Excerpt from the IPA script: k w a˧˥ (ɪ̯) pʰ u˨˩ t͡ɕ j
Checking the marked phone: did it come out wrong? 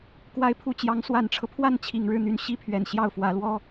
no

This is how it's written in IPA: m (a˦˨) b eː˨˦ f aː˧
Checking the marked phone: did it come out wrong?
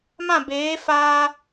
yes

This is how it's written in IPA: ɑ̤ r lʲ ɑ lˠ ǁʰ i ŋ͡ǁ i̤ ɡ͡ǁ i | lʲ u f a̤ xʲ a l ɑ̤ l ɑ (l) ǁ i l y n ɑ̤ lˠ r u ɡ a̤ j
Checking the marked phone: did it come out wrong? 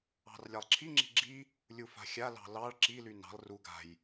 yes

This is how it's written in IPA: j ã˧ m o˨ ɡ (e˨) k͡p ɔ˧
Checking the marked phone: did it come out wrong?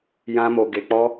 no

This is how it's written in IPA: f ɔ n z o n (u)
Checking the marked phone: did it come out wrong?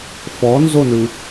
yes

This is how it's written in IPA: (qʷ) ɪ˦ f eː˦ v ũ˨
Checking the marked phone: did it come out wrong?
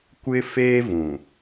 yes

